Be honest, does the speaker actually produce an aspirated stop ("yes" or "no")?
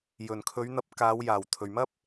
yes